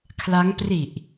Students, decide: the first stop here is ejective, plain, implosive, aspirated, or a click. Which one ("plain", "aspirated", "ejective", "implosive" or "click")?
aspirated